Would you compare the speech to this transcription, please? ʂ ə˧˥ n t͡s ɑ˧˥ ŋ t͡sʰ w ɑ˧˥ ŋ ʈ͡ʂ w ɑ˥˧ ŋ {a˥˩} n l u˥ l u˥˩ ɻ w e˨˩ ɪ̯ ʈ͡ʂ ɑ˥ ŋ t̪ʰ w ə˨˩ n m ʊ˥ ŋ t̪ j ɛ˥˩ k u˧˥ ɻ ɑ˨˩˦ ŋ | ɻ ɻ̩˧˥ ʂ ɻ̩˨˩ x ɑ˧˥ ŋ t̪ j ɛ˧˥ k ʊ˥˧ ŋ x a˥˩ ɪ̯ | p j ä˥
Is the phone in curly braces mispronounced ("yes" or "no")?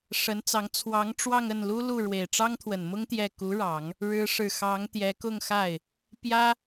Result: yes